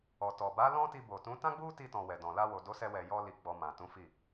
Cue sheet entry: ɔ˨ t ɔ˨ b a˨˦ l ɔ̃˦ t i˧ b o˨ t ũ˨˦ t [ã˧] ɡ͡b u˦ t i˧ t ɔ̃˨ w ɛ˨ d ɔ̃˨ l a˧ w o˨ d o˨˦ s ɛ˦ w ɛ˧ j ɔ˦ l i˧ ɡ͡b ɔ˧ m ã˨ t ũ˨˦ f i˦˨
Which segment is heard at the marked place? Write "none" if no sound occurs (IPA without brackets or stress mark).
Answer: ã˦